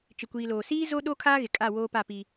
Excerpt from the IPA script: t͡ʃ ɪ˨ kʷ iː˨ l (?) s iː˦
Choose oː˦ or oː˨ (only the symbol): oː˨